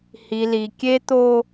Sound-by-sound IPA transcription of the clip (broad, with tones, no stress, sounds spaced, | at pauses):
h i˨ l i˨ kʲ e˦ t̪ o˦